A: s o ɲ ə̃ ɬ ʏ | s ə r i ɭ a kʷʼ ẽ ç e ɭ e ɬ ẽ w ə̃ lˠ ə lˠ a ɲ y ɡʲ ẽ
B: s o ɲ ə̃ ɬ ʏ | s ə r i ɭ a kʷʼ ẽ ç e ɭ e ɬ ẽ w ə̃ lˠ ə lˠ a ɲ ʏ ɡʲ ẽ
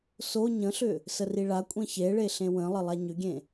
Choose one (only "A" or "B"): B